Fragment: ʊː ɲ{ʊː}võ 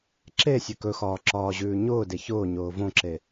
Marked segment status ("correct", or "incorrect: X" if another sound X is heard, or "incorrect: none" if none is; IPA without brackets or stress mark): correct